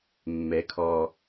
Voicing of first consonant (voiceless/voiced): voiced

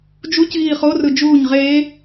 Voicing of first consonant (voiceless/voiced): voiced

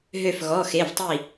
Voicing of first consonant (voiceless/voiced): voiced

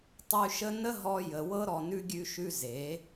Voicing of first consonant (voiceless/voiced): voiceless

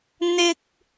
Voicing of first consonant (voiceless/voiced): voiced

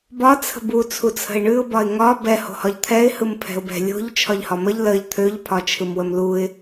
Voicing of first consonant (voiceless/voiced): voiced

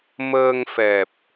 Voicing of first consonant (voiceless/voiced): voiced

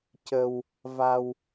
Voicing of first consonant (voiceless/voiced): voiceless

